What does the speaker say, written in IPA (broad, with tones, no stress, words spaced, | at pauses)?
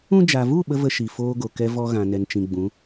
ũ˧d͡ʒa˨vu˦˨ ɓə˦və˧ʃi˨ foː˦ɡo˨kɛ˦vɔ˦ ɣã˨nɛ˨nt͡ʃĩ˨ ɡ͡bũ˨˦